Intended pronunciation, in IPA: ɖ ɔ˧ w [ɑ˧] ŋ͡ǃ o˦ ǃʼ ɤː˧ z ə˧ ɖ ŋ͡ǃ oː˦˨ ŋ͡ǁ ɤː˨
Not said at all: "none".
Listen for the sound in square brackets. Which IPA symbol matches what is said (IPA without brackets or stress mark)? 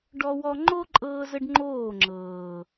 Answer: ɔ˧